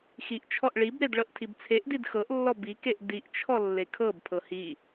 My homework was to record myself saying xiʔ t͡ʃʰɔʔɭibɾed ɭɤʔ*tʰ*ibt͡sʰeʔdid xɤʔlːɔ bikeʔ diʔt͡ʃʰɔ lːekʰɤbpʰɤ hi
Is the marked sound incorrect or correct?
correct